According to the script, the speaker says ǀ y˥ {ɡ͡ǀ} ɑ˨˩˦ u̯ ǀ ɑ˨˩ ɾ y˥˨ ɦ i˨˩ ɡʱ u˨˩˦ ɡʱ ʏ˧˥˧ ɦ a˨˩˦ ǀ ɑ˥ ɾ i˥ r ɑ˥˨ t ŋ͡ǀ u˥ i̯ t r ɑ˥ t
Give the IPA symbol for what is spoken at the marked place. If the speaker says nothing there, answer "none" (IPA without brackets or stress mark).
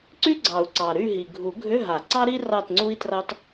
ɡ͡ǀ